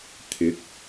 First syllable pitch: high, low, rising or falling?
rising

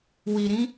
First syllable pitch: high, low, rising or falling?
low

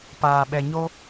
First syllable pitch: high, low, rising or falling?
low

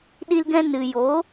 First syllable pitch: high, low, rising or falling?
high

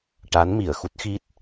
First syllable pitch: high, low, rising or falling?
rising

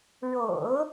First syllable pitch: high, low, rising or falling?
low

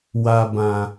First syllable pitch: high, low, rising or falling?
low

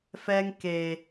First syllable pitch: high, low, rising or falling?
high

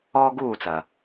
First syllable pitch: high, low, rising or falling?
high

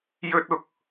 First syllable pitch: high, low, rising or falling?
high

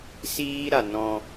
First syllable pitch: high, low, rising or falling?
high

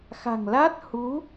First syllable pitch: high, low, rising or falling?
low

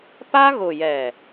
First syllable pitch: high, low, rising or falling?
high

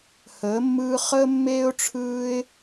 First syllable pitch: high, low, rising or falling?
rising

